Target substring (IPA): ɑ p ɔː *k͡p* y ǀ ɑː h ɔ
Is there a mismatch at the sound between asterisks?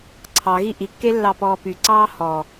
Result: yes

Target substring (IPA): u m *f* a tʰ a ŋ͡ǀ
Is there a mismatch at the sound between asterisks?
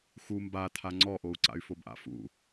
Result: yes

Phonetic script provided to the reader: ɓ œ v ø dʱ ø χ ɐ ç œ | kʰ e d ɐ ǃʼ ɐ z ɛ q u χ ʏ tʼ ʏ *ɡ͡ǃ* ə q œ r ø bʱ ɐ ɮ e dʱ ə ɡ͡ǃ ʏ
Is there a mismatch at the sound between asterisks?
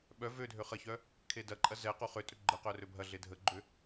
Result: no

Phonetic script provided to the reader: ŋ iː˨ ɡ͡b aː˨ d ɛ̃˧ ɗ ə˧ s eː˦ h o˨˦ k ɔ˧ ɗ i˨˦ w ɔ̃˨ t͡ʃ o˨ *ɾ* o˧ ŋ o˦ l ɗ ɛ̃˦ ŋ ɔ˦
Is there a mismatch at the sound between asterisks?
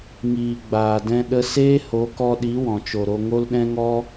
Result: no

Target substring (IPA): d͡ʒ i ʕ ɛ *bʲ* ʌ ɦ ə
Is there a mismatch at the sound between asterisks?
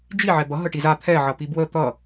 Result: yes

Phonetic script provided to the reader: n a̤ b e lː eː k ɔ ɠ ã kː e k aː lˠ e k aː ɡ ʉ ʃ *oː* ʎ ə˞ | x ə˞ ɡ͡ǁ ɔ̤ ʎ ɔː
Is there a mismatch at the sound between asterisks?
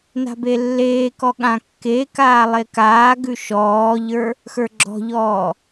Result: yes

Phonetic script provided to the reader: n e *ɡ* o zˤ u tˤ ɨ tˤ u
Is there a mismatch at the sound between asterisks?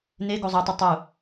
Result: no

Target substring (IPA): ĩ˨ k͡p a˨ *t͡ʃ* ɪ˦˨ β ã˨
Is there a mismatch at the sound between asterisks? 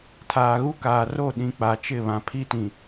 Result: no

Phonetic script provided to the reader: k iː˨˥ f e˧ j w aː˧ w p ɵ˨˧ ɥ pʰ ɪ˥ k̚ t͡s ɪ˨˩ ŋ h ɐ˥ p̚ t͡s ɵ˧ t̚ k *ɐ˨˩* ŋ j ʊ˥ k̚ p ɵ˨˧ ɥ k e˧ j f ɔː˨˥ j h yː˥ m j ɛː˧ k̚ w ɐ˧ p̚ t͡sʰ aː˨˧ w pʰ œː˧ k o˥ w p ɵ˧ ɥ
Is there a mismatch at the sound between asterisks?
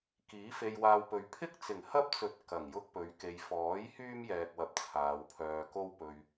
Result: no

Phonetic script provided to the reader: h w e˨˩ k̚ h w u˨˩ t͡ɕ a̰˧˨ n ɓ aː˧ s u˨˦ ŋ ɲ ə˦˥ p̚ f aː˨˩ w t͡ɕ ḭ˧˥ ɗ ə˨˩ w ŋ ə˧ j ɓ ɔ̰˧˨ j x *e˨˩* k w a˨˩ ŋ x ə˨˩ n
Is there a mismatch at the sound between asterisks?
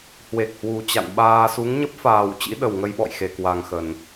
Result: no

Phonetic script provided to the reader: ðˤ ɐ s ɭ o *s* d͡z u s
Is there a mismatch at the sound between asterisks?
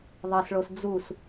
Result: no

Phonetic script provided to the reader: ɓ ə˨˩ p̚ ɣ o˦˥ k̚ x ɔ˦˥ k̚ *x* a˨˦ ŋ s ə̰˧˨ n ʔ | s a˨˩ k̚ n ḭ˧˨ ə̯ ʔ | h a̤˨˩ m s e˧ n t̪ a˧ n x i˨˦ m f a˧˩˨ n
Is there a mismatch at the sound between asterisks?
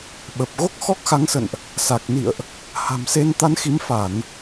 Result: no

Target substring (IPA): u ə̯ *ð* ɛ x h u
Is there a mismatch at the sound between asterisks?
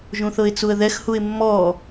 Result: no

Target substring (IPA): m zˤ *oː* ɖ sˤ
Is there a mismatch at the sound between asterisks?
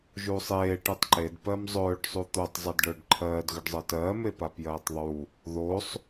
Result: yes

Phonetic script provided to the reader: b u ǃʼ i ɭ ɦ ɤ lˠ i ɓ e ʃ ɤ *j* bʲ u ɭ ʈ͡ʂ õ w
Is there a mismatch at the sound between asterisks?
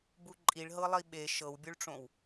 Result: yes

